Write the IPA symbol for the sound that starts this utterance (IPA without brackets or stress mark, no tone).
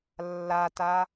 lː